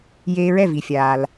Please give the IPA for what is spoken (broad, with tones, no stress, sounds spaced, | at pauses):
j eː˧ ɹ ɛ˥˩ v i˩ fʲ aː˩ l